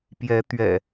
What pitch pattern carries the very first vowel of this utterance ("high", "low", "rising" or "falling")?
rising